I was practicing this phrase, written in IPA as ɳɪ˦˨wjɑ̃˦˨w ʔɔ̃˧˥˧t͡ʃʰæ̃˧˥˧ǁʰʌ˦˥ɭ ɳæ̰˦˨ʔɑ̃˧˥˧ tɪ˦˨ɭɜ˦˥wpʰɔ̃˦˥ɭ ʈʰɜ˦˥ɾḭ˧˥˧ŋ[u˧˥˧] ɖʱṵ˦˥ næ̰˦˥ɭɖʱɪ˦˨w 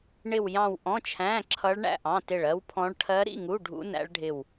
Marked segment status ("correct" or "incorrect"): correct